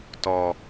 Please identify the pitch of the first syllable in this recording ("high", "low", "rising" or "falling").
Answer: low